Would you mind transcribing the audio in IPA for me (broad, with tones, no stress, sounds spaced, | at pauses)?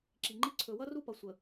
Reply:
ǁ i˨ ŋ͡ǃ i˦ ǀʰ ɵ˨ w ʌ˦ r u˦ p ʌ˨ sʷ ə˨